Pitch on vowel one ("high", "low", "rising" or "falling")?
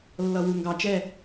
low